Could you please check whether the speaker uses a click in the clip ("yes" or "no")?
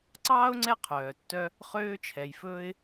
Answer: yes